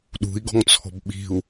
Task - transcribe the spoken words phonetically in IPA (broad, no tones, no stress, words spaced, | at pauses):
ɗṳi̯ ɡɔ̤ŋt͡sʰɔ̤bɓi̤u̯